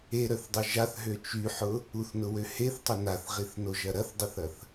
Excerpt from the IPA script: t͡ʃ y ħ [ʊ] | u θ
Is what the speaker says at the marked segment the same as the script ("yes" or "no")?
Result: yes